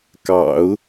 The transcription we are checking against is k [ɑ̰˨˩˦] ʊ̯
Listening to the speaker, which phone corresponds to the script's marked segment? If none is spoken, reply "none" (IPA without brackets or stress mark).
ɑ̰˨˩˦